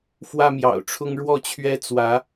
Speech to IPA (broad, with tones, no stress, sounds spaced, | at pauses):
f w ä˦ m j ɑ̰˨˩ ʊ̯ ʈ͡ʂʰ ʊ˦ ŋ ɻ w ɔ˥˨ t͡ɕʰ ɥ ɛ˦ t͡s w ä˨˦